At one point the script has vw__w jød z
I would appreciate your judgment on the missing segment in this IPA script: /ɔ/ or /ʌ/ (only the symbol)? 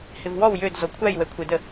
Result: ɔ